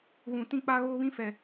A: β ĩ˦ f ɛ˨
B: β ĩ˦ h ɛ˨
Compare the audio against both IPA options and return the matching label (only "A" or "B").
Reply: A